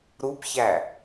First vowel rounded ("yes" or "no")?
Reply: yes